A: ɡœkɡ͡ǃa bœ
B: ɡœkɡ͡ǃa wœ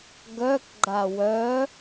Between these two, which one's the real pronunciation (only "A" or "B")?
B